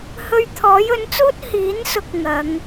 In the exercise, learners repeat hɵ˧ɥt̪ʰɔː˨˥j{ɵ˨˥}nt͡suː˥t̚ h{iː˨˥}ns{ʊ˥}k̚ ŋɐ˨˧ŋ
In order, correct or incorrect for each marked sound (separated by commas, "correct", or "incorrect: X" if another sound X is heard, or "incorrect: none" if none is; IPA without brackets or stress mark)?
correct, correct, incorrect: ʊ˨˥